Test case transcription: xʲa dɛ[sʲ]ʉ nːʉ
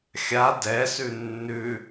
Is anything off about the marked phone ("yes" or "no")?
yes